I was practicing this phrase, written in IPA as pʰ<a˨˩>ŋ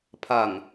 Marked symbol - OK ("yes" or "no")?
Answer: yes